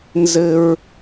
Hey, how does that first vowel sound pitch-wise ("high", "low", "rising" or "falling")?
high